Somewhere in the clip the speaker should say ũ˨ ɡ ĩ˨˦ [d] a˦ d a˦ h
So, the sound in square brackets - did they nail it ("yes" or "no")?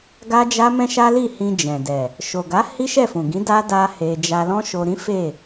yes